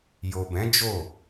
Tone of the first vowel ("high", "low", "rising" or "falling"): low